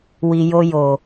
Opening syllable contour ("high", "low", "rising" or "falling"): low